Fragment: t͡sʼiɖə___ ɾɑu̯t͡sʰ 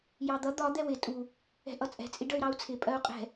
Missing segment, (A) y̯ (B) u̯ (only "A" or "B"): A